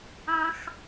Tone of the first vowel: high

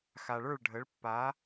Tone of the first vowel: low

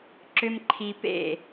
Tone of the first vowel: high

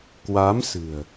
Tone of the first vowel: rising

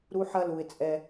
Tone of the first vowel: high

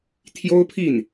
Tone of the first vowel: high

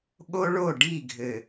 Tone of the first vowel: high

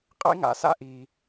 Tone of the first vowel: high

